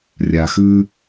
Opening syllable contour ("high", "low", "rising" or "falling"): low